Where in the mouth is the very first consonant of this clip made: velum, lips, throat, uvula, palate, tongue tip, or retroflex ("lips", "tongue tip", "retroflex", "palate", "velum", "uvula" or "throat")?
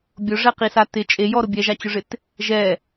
lips